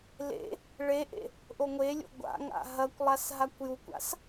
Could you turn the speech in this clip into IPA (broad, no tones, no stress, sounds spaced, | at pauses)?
l ḛ | ɭ e ʔ ḛ | ʔ o ŋʷ e lʲ o̰ ɡʷ a̰ ŋ a̰ ɦ ɐ kʷ lˠ a s ɦ a kʷ j u kʷ a̰ s